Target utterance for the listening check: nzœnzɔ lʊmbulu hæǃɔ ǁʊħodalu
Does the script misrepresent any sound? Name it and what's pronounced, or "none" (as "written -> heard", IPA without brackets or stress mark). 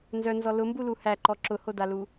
ħ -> h